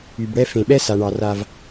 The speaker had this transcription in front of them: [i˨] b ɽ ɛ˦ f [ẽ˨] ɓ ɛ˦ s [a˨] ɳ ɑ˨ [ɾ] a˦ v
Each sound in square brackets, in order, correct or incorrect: incorrect: y˨, correct, correct, incorrect: r

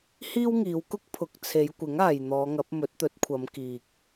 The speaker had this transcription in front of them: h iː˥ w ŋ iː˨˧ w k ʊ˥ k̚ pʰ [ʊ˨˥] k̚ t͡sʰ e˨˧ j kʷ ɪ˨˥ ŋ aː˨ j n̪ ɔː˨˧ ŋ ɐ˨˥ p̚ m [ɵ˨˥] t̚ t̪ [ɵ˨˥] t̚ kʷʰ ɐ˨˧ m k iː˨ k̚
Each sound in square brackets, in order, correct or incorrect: correct, correct, correct

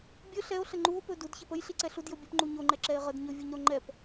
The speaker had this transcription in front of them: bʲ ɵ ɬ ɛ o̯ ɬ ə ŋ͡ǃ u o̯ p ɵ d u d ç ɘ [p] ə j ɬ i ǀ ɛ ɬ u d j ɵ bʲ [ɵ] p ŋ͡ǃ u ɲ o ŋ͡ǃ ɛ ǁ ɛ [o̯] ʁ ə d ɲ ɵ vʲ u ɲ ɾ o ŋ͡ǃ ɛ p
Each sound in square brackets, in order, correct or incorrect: correct, correct, incorrect: e̯

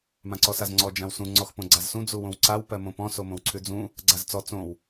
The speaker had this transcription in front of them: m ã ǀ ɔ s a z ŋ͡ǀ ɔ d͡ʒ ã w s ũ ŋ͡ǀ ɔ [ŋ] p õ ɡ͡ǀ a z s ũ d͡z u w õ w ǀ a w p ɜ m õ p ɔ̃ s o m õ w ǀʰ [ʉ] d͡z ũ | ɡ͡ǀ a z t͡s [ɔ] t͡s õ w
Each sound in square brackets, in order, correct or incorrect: incorrect: x, correct, correct

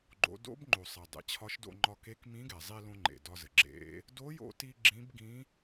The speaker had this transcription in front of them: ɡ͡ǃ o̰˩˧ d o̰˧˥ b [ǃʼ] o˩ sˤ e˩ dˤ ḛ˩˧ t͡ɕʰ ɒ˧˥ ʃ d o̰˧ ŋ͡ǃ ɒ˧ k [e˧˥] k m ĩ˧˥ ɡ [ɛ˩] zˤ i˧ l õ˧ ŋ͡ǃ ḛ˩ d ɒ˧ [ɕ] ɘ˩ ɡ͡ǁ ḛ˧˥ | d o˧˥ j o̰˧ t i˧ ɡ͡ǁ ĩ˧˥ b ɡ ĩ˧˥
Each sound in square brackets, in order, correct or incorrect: incorrect: ŋ͡ǃ, correct, correct, incorrect: z

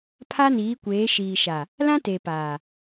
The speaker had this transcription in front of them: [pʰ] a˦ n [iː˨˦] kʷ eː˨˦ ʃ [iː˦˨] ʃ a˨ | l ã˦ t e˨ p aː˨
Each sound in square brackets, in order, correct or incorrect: correct, correct, incorrect: iː˨

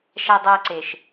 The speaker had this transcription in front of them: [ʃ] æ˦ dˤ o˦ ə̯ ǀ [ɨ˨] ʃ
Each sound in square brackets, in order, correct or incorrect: correct, incorrect: e˨

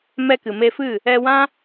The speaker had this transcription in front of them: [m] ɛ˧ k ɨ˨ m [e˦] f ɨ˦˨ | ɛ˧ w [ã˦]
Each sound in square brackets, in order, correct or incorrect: correct, incorrect: e˧, correct

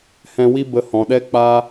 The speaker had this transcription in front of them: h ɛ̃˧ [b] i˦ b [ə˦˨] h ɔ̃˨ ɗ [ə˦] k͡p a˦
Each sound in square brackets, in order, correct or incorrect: incorrect: w, incorrect: ə˧, incorrect: ɛ˦

